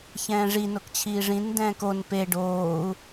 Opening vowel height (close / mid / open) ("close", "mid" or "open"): mid